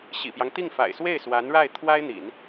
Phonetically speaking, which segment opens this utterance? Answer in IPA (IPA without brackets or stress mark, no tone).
ɕ